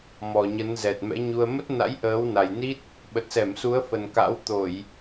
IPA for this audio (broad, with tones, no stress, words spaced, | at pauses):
mɔ˨˩ɲə˨˦nzɛ˨˩t̚ mɛ̰˧˥ɲu˧ə̯ mə˦˥t̚na̰˧˥j ʔəː˨˦wna˨˩jni˦˥t̚ | ɓə˨˩t̚sɛ˧˩msu˨˦ə̯fə˨˩n ka̰˧˥wt̪o˧˩˨j